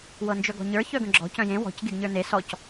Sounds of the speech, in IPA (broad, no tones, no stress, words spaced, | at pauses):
wɤnd͡ʒœɡɔ̤ɲə˞ çœɡə̃ɡ͡ǁɔ̤ cœ̃jẽ wɔ̤c ɡeɡɲə˞ne sɔc